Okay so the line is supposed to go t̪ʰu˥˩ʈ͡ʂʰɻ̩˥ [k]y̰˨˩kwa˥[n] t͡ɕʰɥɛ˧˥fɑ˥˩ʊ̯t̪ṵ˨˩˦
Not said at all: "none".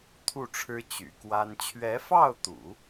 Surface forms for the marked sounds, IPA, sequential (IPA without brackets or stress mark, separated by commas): t͡ɕ, n